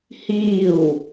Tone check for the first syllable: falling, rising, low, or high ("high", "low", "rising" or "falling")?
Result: falling